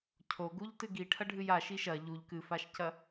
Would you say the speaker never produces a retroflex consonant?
no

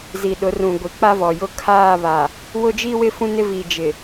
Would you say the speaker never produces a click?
yes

